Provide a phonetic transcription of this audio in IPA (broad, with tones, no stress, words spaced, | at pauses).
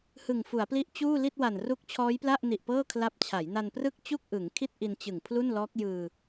hɯ˨˩ŋfu˩˦a̯pli˦˥ʔ t͡ɕuː˥˩li˥˩t̚ wa˨˩nru˦˥k̚t͡ɕʰɔː˦˥jpla˥˩ʔ ni˨˩ʔ pɤː˥˩kʰla˦˥p̚ t͡ɕʰa˩˦jna˧nprɯ˥˩k̚ t͡ɕu˥˩k̚ ʔɯ˩˦ŋkʰi˥˩t̚ ʔi˧nt͡ɕɯ˨˩ŋ pʰlu˥˩nlɔː˦˥k̚jɯː˧